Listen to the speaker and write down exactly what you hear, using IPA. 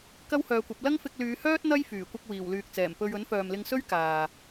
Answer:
k ɐ˥ w h œː˨˧ kʷ ɐ˨˥ p̚ l ɐ˥ ŋ f ɪ˧ k̚ l yː˨˧ h œː˥ t̚ n̪ ɐ˥ j f yː˨˩ kʷ ɐ˧ k̚ w iː˨˩ w l yː˨ k̚ t͡s ɛː˨˩ m p ɵ˧ ɥ ɵ˨˥ n f œː˨ m l ɪ˧ ŋ s ɵ˥ ɥ k aː˨

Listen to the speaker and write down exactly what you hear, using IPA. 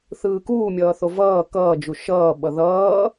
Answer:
θ ɯː k uː mʲ ʌː θ o v ʌː k ʌː d͡ʒ u ʃ ʌː ɓ ʌ ð ʌː

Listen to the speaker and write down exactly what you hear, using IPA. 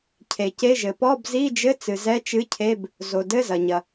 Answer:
cʰ e˩ c e˧˥˧ ʒ ɘ˩ p ɔ˧˥˧ b z i˧˥˧ d͡ʒ ɘ˧˥˧ t͡s ɨ˩ z ɛ˧˥˧ t͡ʃ ɨ˧˥˧ cʰ e˧˥˧ b | z o˩ d ɘ˧˥˧ z ɐ˩ ɲ ɐ˩

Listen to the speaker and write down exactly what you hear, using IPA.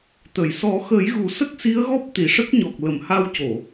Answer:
t̪ ə˨˩˨ j s ɔ˨˩˦ x ə˨˩˦ j ɣ u˨˩˦ s ə˦˥ k̚ s i˧˥ ə̯ ɣ ɔ˦˥ p̚ t̪ i˨˩ ʂ ə˦˥ k̚ ɲ ɔ˨˩ k̚ l ə˨˩˨ m h a˧ w c o˨˩˨

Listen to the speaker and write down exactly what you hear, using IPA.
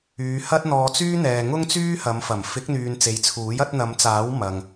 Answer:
yː˨˧ h ɐ˥ t̚ n̪ ɔː˧ t͡s yː˥ n̪ ɛː˨ ŋ ʊ˥ ŋ t͡s yː˥ h ɐ˨˧ m f ɐ˨˩ m f ɪ˨˥ k̚ n̪ yː˨ n t͡s e˨˧ j t͡sʰ uː˨˥ j ɐ˨˥ t̚ n̪ ɐ˨˧ m t͡s aː˨˥ w m ɐ˨ ŋ

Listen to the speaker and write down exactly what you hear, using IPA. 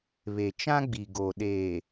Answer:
β e˨ t͡ʃ ã˦ ɡ͡b i˨ ɡ o˨ ɗ eː˨

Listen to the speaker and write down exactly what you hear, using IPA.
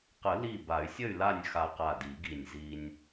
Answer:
q ə˨˩˦ l i˧˩ b a˨˩˦ y̯ sʲ ə˥˨ y̯ l a˥˨ nʲ x a˧ q a˧˩ d i˨˩˦ ɡ i˧˩ nʲ z i˧ nʲ

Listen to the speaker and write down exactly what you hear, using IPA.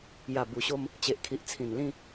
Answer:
j a˨˩ b u˨˩ ɕ o˧ m | t͡ɕ e˨ ʔ kʰ i˨ ʔ t͡sʰ ĩ˨˩ n l ĩ˥˧

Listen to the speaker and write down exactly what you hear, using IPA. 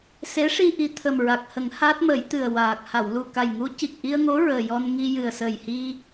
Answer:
s e˧˥ ʂ i˧ ʔ i˨˩ t̪ʰ ə˨˩ m ɹ a˨˩ k̚ h ə˨˩˦ ŋ h a˦˥ t̚ m ə˨˩˦ j t̪ ɨ˨˩ ə̯ w aː˨˩ k̚ h a˨˩˨ w l u˨˩ k a˨˩ j ŋ u˧˥ c i˨˩ k̚ ʔ i˧ ə̯ ŋ o˧˥ ɹ əː˨˩ j ɔ˧ n ŋ i˧ j ɨ˨˩ ə̯ s ə˨˩ j h i˧

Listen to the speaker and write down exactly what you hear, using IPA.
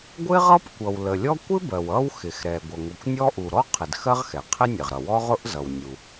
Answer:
ɡʷ ɪ˥ ʁ ʌ˥ p kʷ ʌ˩ w l ə˩ lʲ ɔ˥ kʷ ɪ˥ b ɜ˩ w ʌ˥ w x ɪ˩ x ɾ ɛ˩ ɡʷ ʌ˩ ŋʷ ʌ˩ kʷ nʲ ɔ˥ ʔ u˩ ɾ ɔ˥ qʰ ɪ˩ d x ɜ˥ ʁ x ɛ˩ qʰ ɪ˥ nʲ ə˩ ʁ ɾ ʌ˩ w ɔ˥ ʁ ʊ˥ ʔ z ʌ˩ w nʲ u˩

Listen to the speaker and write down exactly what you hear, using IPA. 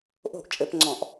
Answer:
ʔ o̤˥˨ ʔ t͡ʃʼ ɘ˧˩˧ p ŋ͡ǀ ɔ̃˧˩˧ ʔ

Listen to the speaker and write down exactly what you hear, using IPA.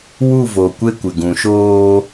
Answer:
w u˦˨ v o˨ kʷ e˦ kʷ ɪ˨ ɡ ũ˨ ʃ oː˦

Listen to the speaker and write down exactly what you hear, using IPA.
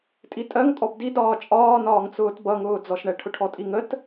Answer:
tʼ i tʼ ɜ ŋ tʼ ɔ b d i d ɒː t͡ʃʼ ɒː n ɒː ŋ t͡s ʊː t b ʌ ŋ ʊː d͡z ɔ ʃ ɳ ɛ ʈʰ ʊ ʈʰ ɔ tʼ i ŋ ə t

